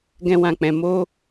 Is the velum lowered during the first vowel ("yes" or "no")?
yes